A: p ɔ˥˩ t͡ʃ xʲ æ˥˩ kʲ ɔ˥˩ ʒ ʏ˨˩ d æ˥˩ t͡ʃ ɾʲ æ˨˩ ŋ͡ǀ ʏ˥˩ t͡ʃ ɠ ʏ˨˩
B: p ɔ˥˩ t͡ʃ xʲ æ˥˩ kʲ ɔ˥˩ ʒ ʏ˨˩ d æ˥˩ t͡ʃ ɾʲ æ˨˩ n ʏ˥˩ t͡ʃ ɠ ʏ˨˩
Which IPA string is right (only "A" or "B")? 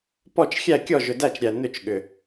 B